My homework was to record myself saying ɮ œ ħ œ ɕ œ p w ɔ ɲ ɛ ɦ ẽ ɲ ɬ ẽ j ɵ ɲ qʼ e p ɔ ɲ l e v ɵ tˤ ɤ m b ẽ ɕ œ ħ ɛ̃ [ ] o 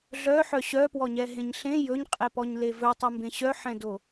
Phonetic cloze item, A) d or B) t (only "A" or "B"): A